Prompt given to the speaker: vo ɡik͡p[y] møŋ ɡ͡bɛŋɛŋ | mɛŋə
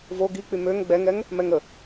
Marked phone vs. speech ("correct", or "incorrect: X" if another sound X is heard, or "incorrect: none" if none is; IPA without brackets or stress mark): correct